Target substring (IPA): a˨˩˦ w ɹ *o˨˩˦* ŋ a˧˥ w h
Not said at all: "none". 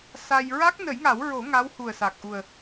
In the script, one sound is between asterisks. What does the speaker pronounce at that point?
o˨˩˦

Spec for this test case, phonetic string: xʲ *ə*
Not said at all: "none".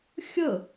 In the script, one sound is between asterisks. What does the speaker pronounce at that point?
ə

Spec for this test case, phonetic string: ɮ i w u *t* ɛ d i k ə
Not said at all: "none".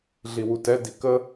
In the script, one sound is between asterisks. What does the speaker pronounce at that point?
t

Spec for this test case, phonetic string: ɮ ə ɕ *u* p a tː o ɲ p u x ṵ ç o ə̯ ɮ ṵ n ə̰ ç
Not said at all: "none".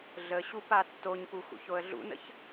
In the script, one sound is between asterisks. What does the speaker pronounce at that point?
u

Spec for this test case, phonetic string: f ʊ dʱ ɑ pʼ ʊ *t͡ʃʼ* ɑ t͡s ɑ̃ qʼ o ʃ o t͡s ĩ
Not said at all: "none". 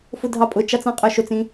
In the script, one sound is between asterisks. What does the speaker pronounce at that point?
t͡ʃ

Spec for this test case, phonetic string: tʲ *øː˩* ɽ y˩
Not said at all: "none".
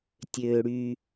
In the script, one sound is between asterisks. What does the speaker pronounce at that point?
øː˩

